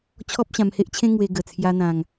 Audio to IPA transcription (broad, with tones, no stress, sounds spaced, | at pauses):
t͡ɕʰ ɔ˦ p̚ ɕ ã˧ m h e˦ ʔ t͡ɕʰ ẽ˦ ŋ w e˧ ɡ ə˨˩ t͡sʰ j a˧ n̪ ã˧ ŋ